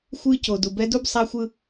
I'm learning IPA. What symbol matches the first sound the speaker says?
xʷ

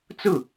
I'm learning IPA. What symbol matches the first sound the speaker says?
t͡s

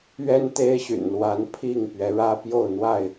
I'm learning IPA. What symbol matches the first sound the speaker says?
ɥ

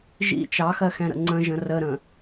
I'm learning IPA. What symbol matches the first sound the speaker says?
ʒ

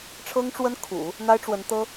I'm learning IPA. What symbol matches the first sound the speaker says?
ʈ͡ʂʰ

